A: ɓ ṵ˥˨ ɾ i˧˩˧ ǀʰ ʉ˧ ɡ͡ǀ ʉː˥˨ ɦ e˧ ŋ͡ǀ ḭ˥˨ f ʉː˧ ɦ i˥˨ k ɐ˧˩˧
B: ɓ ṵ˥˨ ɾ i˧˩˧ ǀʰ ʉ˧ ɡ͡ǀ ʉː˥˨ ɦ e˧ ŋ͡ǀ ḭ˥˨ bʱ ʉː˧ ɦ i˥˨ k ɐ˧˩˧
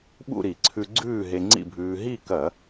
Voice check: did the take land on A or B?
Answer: B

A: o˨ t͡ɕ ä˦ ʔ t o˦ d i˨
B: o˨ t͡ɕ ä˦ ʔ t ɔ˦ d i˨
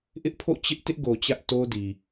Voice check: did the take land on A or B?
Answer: A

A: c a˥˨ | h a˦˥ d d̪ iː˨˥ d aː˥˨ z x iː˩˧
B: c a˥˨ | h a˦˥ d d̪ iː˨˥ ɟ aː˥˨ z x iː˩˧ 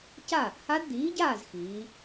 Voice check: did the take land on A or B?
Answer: B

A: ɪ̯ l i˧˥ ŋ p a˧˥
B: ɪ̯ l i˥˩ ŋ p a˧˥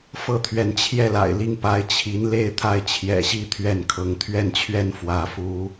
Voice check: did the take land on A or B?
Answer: B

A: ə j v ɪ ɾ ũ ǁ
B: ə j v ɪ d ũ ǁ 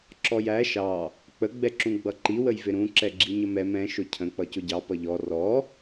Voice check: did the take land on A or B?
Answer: A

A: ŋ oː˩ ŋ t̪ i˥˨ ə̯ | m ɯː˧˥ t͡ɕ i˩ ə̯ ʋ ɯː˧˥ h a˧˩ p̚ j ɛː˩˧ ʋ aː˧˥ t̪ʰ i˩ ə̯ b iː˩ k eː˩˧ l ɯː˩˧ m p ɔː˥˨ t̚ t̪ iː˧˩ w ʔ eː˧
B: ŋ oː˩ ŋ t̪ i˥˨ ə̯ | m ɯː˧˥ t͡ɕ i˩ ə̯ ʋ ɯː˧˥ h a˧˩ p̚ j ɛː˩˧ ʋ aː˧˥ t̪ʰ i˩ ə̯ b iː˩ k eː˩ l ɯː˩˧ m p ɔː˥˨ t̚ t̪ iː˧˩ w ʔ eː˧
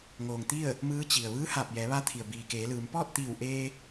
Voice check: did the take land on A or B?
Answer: A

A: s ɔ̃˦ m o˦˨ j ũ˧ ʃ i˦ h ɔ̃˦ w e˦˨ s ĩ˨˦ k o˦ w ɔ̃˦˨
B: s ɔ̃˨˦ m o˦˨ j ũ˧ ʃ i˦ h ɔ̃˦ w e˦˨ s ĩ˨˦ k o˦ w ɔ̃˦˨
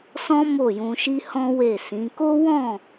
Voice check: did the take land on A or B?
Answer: A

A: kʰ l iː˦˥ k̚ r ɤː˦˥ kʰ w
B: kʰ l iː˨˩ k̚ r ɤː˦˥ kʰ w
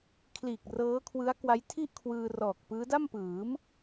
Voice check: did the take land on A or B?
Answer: B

